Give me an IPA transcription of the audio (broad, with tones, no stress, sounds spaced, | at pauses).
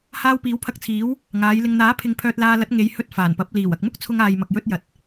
h aː˧ w p iː˨˥ w pʰ ɐ˧ k̚ t͡sʰ iː˨˥ w | ŋ aː˨˧ j l ɪ˨ ŋ n̪ aː˨˥ pʰ ɪ˧ ŋ pʰ œː˧ t̚ l aː˧ l ɐ˨˥ t̚ ŋ e˨˧ j h ɵ˧ t̚ f aː˨˩ n p ɐ˨˥ p̚ l iː˨˩ w ɐ˨ k̚ m ʊ˥ k̚ t͡sʰ ʊ˧ ŋ aː˨ j m ɐ˨ k̚ j ɵ˧ t̚ j ɐ˨ t̚